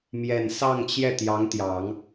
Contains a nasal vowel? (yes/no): no